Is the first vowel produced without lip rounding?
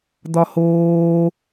no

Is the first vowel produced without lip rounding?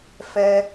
yes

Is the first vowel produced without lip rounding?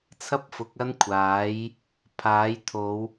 yes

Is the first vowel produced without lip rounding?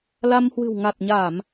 yes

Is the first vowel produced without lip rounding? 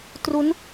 no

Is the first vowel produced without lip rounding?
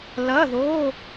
yes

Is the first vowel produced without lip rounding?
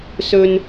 no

